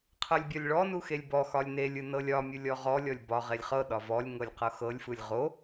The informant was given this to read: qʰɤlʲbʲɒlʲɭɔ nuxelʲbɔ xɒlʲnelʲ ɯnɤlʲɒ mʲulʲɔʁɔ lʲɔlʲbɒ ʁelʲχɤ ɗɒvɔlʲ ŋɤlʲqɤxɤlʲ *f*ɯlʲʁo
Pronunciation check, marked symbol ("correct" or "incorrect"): correct